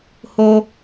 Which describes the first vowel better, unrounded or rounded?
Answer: rounded